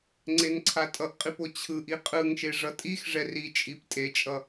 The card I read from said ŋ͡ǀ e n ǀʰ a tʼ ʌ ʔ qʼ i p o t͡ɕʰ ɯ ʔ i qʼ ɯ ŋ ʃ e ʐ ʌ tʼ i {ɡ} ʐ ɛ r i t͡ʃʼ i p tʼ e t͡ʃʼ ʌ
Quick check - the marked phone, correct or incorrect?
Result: incorrect